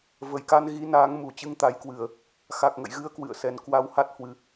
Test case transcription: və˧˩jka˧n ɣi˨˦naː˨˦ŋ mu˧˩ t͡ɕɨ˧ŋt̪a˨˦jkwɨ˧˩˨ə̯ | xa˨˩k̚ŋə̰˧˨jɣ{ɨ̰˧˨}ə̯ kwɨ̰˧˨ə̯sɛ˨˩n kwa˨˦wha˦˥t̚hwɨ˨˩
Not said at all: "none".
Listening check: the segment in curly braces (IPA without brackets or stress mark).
ɨ˨˦